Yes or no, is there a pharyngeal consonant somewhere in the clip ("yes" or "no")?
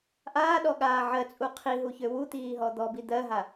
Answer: yes